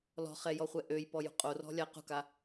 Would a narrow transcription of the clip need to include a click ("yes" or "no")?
no